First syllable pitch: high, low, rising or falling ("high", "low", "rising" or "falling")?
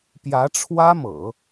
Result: rising